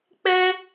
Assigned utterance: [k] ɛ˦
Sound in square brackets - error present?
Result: yes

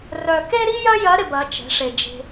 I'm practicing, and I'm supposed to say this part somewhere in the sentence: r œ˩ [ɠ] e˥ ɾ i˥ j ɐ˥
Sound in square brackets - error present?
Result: yes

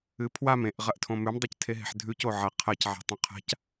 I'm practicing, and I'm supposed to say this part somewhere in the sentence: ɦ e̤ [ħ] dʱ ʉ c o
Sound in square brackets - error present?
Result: no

